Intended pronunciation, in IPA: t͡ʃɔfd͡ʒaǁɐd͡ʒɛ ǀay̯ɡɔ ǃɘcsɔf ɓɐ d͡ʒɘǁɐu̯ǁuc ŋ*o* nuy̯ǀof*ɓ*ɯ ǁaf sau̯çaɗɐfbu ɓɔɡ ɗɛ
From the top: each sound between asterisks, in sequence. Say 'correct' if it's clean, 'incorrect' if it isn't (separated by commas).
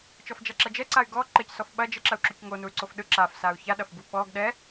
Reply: correct, incorrect